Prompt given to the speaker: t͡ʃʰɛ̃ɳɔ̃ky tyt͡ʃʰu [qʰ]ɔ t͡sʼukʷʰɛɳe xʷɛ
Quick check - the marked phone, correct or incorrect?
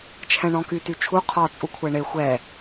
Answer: correct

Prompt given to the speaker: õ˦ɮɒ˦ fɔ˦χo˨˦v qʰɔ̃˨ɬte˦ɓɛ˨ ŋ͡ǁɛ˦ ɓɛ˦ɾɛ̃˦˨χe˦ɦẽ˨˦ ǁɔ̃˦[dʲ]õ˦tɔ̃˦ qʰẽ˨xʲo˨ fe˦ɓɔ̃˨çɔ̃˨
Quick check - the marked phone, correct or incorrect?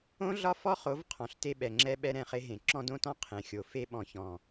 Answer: incorrect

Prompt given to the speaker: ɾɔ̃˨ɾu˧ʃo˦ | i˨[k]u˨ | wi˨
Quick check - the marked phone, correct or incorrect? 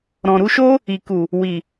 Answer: correct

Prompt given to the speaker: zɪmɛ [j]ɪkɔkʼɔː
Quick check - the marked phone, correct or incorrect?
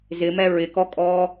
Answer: incorrect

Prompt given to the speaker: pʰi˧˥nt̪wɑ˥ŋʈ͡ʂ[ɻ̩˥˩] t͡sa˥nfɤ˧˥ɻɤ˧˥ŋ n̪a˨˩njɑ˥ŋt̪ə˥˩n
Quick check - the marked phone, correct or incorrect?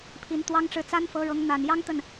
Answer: correct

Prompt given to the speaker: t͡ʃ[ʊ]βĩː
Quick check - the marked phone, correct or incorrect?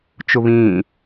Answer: correct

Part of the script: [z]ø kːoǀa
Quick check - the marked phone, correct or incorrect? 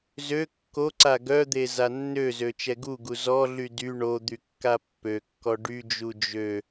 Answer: correct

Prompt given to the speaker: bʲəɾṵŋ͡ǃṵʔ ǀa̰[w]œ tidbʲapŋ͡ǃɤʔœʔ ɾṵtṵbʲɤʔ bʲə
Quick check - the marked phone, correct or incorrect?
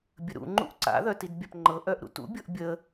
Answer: incorrect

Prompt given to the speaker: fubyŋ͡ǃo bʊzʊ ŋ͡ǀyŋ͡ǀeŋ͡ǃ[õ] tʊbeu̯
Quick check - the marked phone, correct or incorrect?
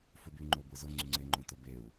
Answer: correct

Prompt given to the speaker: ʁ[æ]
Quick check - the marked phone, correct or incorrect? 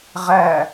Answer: correct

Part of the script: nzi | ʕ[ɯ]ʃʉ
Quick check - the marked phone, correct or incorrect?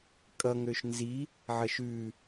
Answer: incorrect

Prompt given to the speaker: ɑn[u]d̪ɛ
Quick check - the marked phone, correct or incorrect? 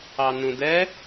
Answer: incorrect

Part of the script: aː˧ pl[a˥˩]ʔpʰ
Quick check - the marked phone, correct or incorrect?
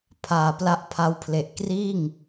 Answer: correct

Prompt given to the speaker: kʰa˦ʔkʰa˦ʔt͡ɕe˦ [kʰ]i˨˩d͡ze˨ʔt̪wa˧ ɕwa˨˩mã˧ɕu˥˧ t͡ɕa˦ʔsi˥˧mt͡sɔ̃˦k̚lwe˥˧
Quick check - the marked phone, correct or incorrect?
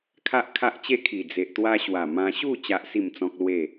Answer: correct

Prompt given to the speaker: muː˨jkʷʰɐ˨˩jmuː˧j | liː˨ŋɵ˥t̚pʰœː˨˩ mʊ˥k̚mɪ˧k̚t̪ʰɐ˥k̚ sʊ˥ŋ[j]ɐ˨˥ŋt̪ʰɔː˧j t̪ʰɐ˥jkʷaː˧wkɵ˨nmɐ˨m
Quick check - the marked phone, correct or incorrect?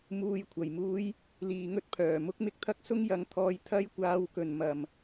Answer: correct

